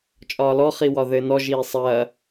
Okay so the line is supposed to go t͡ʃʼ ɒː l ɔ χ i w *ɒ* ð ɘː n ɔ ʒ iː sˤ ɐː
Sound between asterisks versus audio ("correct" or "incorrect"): correct